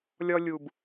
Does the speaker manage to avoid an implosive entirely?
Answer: yes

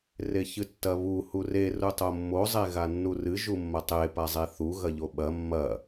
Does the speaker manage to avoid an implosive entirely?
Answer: no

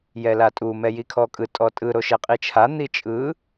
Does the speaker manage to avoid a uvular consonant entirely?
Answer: no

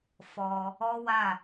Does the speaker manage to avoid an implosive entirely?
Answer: yes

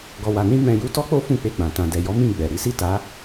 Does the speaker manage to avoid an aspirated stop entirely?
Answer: yes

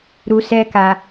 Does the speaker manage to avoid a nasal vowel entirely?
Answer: yes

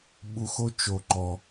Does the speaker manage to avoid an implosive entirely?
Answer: no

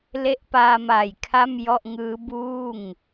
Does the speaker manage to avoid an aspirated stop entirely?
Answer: no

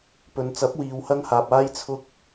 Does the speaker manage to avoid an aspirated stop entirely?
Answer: no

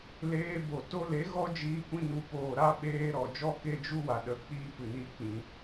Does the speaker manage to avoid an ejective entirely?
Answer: yes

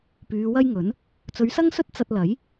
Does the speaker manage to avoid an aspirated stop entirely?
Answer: yes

